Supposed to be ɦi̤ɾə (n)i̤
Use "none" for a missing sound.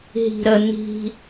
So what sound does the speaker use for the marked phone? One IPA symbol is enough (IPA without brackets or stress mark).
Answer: n